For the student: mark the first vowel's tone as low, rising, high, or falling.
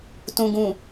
low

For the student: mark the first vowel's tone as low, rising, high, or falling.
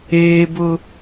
high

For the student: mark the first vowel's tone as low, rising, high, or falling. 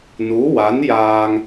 rising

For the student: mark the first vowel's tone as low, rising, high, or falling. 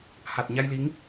low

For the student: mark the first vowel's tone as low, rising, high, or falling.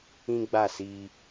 high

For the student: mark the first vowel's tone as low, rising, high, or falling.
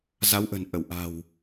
rising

